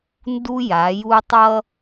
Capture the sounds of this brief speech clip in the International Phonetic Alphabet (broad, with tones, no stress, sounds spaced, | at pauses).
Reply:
n d u˦ j a˨˦ j u˦ tˤ ʌ˦